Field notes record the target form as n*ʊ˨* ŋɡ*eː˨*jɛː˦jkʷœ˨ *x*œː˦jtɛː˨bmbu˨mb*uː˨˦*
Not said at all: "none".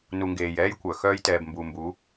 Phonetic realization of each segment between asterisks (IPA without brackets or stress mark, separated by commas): u˨, eː˨, x, uː˨˦